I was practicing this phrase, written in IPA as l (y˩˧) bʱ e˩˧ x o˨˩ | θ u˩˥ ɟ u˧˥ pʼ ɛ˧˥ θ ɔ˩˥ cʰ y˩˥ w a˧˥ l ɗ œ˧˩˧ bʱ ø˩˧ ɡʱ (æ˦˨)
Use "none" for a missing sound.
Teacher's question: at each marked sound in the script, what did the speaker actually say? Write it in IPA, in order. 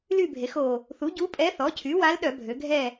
y˦˨, ɛ˦˨

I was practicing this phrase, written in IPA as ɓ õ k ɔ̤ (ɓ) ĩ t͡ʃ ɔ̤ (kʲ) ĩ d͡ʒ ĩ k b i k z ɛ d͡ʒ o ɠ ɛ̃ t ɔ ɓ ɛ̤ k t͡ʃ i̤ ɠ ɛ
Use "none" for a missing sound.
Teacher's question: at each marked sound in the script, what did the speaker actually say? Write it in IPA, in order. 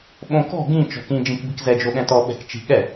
ɡ, k

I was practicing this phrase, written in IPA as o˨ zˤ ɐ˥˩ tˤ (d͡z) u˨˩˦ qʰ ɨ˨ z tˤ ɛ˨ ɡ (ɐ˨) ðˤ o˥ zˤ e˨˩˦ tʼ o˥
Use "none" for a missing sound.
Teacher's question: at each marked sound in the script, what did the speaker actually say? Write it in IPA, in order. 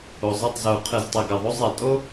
z, ɐ˨

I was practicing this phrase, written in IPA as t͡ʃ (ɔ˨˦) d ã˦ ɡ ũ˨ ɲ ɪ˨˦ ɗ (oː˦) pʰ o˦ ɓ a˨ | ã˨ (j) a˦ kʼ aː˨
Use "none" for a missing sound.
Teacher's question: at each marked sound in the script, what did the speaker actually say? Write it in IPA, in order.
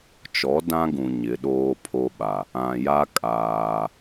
ɔ˨˦, oː˦, j

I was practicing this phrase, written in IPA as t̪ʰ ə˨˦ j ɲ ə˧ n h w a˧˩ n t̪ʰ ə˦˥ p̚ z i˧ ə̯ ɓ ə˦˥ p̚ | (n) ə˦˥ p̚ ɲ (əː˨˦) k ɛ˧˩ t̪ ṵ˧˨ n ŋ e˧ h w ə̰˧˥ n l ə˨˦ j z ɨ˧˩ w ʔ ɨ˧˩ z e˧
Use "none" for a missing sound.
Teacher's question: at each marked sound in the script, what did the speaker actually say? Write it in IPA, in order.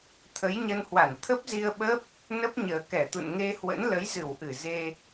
n, əː˨˩

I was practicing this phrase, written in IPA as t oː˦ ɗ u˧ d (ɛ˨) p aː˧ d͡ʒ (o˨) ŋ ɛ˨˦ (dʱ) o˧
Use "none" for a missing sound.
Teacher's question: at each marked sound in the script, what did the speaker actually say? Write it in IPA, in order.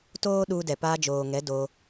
ɛ˨, oː˨, d

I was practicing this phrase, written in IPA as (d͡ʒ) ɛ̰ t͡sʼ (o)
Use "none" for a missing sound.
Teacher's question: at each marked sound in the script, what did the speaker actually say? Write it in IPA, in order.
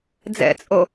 d͡z, o

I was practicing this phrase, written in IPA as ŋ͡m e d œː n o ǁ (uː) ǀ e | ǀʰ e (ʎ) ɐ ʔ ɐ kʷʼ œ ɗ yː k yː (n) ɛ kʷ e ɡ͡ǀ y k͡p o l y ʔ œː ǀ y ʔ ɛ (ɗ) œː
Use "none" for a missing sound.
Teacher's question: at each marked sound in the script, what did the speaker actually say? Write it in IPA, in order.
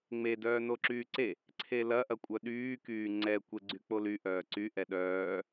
yː, l, ŋ͡ǀ, ɗ

